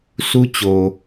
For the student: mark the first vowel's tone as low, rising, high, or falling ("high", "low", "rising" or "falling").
high